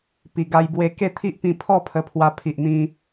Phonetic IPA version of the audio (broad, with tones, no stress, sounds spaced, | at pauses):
p i˨˩ ɡ a˧ j b w e˧ k e˥˧ t̪ʰ i˦ ʔ p ĩ˧ pʰ ɔ˥˧ pʰ ə˧ pʰ w a˧ pʰ i˨ ʔ n̪ ĩ˧